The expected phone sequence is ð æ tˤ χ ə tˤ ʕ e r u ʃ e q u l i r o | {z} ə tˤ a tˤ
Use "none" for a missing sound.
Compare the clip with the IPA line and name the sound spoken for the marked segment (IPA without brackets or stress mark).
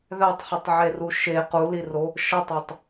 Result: ʃ